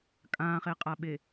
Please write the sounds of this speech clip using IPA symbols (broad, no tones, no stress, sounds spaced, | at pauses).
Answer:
kʼ ãː χ e qʼ a ɓ e